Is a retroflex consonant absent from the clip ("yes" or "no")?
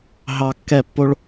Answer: no